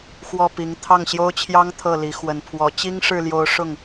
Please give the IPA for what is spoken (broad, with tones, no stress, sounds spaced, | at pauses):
x w ɔ˥˩ p i˧˥ ŋ t̪ʰ ɑ˥˩ ŋ ɕ j o˥ ʊ̯ t͡ɕʰ j ɑ˥ ŋ t̪ʰ ɤ˥˩ l i˧˥ x w ə˨˩ n pʰ w ɔ˧˥ t͡ɕ i˥ ŋ ʂ ɻ̩˥˩ l j o˧˥ ʊ̯ ʂ ʊ˥˩ ŋ